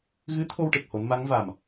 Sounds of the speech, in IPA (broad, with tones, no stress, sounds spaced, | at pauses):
ɣ ɨ˧˥ t̪ʰ o˧ w ʈ e˨˩ k̚ h o˨˩˦ n m a˧˥ ŋ v a˨˩ m